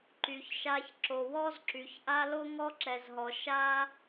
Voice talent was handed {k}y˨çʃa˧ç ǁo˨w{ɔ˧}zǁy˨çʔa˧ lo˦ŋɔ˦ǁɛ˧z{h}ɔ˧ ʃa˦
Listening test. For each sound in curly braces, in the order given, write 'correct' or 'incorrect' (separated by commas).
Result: incorrect, correct, incorrect